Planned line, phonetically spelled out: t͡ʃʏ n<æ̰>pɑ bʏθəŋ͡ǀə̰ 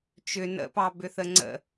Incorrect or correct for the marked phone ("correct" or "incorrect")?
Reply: incorrect